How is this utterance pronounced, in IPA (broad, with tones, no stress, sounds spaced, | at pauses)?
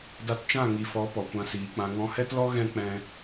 d a˧ t t͡ʃ ã˦˨ ŋ i˨ f ɔ˨˦ p ɔ˨ kʷ ã˧ s iː˨ k͡p ã˧ ŋ ɔ̃˧ h ɛ˦ t l ɔ˦ ɣ ɛ̃˦ k͡p ɛ̃˧